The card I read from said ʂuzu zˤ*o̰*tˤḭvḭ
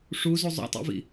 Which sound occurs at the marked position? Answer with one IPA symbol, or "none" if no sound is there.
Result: o̰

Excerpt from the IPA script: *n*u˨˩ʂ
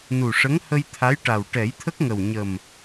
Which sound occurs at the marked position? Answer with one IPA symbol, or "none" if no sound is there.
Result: n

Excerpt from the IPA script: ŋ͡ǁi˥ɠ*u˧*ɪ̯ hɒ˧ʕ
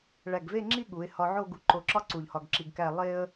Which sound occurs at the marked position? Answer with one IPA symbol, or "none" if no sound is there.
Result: u˩˧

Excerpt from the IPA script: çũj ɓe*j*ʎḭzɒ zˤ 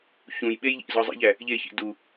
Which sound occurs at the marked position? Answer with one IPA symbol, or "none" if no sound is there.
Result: j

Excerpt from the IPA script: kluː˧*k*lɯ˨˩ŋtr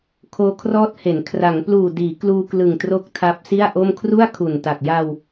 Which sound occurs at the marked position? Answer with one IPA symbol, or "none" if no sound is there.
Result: k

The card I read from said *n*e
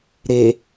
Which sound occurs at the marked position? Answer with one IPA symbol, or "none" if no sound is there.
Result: ɾ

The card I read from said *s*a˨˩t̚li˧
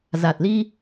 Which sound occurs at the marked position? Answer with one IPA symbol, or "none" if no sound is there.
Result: z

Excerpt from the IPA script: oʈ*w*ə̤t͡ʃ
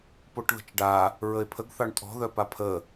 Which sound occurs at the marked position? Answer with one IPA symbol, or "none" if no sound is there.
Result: ð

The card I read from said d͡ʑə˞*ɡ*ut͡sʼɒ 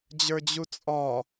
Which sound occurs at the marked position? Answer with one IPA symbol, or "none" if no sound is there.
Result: d͡ʑ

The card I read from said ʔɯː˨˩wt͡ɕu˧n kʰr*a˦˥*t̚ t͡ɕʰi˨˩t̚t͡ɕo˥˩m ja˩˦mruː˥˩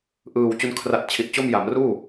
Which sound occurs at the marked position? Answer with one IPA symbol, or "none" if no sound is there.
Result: a˨˩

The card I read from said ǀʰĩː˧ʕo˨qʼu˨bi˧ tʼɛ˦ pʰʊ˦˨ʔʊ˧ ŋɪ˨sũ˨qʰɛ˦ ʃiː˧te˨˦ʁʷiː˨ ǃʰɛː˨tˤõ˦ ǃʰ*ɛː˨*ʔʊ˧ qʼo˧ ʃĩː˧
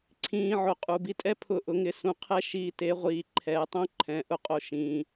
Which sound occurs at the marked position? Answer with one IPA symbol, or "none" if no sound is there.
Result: ɛ̃ː˨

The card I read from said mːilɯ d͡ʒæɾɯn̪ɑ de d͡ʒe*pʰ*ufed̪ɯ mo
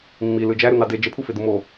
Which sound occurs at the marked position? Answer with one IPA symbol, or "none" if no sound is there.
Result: pʰ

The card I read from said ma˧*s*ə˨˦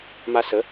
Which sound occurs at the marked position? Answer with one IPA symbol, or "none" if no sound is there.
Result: s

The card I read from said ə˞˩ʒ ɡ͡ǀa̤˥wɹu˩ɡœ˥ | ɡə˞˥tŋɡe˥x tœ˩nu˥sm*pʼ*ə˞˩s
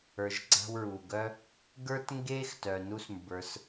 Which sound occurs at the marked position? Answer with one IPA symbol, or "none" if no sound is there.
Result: b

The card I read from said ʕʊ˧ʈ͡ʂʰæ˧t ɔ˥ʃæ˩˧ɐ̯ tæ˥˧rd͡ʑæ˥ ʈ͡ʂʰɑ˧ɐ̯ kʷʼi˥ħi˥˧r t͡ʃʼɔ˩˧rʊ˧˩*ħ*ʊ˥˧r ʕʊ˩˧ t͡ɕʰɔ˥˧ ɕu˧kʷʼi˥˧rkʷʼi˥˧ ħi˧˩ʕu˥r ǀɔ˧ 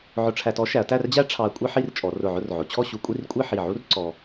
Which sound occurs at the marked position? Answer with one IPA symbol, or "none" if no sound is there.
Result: ʕ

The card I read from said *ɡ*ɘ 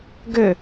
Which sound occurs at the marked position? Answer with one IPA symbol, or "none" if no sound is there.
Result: ɡ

